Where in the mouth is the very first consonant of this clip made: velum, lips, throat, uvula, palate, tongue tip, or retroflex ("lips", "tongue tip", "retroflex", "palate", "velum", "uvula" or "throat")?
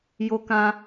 palate